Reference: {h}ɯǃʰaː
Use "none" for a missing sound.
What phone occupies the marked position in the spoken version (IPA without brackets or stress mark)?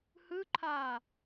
h